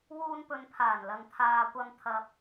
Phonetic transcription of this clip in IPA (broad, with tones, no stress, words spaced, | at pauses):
wuː˧npɵ˨npʰaː˨˩nlɐ˨ŋ t̪ʰaː˧kʷɐ˧m t̪ʰɐ˨p̚